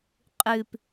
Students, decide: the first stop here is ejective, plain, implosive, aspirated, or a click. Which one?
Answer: ejective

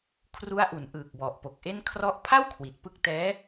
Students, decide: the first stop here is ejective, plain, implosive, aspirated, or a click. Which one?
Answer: aspirated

